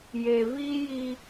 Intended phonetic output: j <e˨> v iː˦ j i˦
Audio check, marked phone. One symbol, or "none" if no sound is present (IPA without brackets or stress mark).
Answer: e˨